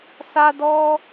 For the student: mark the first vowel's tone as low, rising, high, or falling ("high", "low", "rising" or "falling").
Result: high